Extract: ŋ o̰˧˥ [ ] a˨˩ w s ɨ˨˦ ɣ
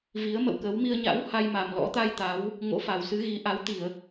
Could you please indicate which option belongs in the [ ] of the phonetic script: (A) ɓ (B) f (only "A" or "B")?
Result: B